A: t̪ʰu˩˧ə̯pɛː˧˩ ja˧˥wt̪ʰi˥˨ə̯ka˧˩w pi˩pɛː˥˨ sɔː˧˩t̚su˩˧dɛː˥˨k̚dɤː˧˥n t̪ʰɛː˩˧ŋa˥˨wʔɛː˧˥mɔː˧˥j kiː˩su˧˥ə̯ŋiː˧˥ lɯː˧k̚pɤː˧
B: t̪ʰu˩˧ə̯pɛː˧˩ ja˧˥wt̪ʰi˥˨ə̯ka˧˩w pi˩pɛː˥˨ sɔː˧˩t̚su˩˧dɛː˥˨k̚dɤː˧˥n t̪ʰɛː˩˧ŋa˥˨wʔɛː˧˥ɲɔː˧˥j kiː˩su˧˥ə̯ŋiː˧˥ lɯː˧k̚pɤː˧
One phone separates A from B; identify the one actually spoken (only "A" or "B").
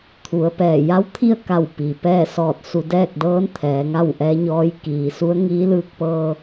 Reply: B